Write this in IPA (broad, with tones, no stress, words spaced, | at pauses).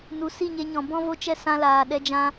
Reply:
nu˨ si˦˨ɲe˧ɲɔ̃˨ bɔ̃˦vo˦t͡ʃɛ˦ sã˧laː˨ ɗɛ˧d͡ʒã˧